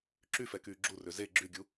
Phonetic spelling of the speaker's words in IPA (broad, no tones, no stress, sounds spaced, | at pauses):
ǁ y f ɛ k yː ɡ͡ǁ u r ø z e ɡ͡ǁ y ɡʲ u